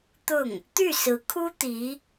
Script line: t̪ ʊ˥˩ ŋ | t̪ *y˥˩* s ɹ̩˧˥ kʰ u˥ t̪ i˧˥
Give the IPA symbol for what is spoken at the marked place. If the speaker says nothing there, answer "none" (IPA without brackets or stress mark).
y˥˩